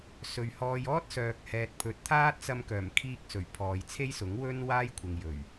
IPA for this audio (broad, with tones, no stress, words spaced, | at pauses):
sɵ˨ɥhɔː˧j ɔː˥t̚sœː˨k̚ hɛː˨t̚pʰɵ˨˥t̚ t̪ʰaː˥t̚t͡sɐ˧mkœː˨˩m kʰiː˧k̚sɵ˨˩ɥ pʰɔː˨jt͡sʰe˥jsʊ˨˥ŋwɵ˥n waː˥jkʷʰɪ˨ŋjɵ˨˩ɥ